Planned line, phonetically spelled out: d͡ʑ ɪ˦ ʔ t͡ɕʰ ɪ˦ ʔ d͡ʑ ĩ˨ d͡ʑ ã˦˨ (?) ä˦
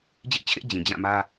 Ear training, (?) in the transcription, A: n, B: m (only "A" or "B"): B